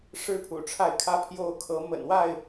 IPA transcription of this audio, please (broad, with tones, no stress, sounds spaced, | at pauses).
ʂ ɻ̩˦ pʰ ṵ˨˩ ʈ͡ʂʰ a˥˨ ɪ̯ kʰ ä˦ pʰ j o˦ ʊ̯ kʰ ɤ˨˦ m ə̰˨˩ n w a˥˨ ɪ̯